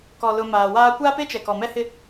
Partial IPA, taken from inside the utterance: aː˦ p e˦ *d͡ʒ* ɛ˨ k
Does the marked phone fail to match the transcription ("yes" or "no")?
yes